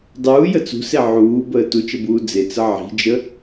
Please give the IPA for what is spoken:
dˤ uː j ə t͡s ṳ s e ʕ uː b əː t u t͡ʃ ə b uː d͡z e t͡s ə ʕ i̤ d͡ʒ ə

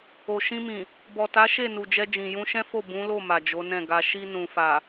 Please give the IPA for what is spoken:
o˨ ʃ ĩ˧ m ĩ˨ | b ɔ˨ t a˨˦ ʃ e˦˨ n u˨ d͡ʒ ɛ˧ d͡ʒ ĩ˨ j ũ˧ ʃ ɛ̃˦ f o˦˨ b ũ˨˦ l o˦˨ m a˨ d͡ʒ o˨˦ n ɛ̃˦˨ ɡ a˧ ʃ i˧ n ũ˨ f a˨

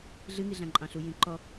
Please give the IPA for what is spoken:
ɮ ɨ ŋ i ɮ ã ǃʼ ɑ̃ ɬ u j ĩ ǃ ɔ

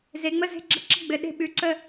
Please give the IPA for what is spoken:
z e˨˦ ŋ͡m ə˥˨ z e̤˥˨ ɡ͡ǁ ə˥˨ ǁ ə˥˨ ɡ͡b ɘ˨˦ ɗ e̤˥˨ ɓ ʉ˨˦ ǀ ə˥˨

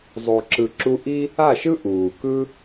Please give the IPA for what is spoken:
zˤ o˨ ǁ ɯ˨ ǁ u˧ ʔ i˦ | a˦˨ ʃ ɯ˦ ʔ uː˨ k ɯ˦

